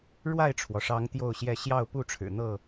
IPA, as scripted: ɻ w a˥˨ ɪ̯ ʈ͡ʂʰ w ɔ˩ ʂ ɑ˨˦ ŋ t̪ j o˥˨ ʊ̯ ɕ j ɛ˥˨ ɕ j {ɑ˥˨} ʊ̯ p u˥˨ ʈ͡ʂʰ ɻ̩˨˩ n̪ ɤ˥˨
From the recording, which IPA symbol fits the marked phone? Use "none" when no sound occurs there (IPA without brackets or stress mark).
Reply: ɑ˥˨